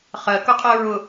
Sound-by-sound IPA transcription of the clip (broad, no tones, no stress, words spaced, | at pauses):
χɜkʊ qʼɜɹʊ